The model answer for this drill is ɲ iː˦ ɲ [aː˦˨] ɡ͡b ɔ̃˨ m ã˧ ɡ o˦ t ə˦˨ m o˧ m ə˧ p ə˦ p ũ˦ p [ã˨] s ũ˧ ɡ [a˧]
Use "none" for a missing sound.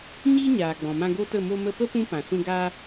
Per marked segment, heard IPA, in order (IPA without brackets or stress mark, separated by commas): aː˨, ã˨, aː˧